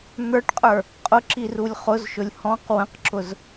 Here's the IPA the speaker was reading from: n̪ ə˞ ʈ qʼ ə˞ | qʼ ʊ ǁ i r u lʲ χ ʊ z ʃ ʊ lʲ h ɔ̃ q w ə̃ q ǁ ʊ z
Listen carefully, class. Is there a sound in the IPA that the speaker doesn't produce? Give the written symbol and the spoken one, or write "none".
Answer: none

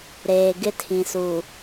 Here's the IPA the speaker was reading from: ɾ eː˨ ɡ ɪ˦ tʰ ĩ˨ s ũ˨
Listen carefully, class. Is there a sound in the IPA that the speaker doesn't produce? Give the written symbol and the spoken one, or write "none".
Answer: ũ˨ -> u˨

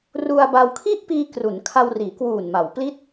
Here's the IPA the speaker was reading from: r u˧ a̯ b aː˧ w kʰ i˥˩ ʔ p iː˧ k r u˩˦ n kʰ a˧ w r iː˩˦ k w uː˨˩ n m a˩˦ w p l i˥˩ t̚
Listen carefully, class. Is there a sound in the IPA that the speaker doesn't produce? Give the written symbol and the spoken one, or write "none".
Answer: aː˧ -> a˧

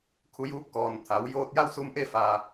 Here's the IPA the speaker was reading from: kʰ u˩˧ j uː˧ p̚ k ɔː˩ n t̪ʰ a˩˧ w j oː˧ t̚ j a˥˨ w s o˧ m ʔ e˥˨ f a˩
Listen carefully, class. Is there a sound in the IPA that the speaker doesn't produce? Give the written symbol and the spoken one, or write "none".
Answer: o˧ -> u˧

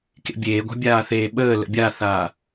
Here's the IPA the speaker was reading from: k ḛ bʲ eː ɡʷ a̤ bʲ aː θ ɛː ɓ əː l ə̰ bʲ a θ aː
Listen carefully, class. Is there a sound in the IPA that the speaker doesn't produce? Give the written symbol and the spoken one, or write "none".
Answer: ɛː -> eː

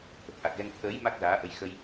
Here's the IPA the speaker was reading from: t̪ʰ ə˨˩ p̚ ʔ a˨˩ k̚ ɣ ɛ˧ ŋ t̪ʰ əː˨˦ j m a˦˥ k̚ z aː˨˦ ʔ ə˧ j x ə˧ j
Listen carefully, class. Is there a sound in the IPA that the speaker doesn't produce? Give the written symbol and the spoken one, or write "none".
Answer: none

